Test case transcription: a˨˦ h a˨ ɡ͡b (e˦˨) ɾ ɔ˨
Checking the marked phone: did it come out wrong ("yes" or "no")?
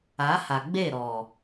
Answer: no